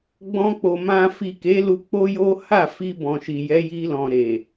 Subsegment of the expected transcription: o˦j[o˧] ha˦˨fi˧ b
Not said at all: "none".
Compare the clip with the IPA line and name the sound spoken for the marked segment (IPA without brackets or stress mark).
o˦